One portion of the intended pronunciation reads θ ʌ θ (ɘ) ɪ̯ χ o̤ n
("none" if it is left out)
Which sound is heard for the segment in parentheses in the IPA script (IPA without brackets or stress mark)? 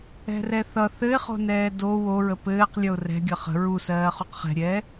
ɘ